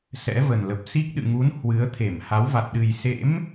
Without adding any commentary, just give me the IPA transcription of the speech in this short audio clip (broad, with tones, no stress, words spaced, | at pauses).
sɛ̰˧˥və˨˩nlə˨˩p̚ si˦˥k̚ɗɨ̰˧˨ŋu˨˦n hwɨ˨˦ə̯t̪ʰe˧˩m ha˨˦wva˨˩t̚ ɗɨ˨˩jsḛ˧˥m